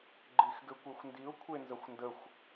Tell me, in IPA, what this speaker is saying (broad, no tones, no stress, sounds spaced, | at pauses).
ɡ͡ǃ i x ɡ ɘ kʷ e xʷ n d i ʊ̯ kʷʰ e n z ɐ xʷ n d ə xʷ